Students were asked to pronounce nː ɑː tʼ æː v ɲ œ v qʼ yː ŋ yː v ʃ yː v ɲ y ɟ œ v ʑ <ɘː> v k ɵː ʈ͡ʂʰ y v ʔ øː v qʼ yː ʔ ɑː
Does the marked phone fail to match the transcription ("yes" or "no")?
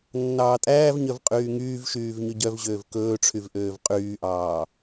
yes